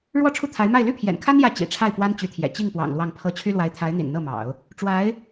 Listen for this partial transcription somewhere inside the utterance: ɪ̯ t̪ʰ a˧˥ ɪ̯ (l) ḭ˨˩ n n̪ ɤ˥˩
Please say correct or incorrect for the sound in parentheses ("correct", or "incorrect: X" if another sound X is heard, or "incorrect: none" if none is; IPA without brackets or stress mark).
incorrect: n̪